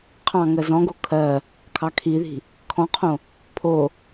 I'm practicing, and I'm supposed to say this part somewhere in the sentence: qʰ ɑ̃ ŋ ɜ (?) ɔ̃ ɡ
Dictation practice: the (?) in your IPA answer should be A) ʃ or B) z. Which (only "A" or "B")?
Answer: B